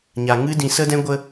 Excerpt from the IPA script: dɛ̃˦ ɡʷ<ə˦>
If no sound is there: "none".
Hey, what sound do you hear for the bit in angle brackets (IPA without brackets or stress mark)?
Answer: ə˦